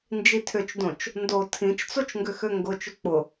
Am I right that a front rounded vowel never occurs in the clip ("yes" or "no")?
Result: no